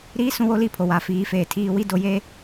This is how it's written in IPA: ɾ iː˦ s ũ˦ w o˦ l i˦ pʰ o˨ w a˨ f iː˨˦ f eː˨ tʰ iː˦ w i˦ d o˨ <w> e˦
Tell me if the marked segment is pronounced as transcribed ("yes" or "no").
no